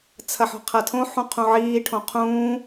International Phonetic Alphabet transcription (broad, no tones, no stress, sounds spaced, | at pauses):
t͡sʰ ɐ ħ ɔ̤ qʰ ɐ tʰ õ ħ ũ qʰ ũ ʕ iː ʈʰ õ qʰ ũː